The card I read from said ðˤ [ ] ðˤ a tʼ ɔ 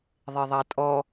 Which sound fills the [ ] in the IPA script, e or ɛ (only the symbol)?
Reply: e